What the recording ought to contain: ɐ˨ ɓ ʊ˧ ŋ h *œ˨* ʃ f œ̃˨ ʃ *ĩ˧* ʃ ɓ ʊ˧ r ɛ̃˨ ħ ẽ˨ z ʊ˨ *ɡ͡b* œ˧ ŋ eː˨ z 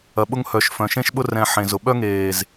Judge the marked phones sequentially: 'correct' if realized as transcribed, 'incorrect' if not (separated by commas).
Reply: correct, incorrect, incorrect